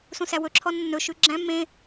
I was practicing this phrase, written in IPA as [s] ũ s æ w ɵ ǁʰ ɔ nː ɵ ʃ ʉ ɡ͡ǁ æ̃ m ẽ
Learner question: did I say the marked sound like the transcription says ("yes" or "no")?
yes